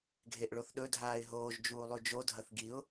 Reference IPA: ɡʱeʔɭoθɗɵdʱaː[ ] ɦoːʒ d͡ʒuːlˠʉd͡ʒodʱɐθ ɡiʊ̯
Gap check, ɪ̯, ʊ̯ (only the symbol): ɪ̯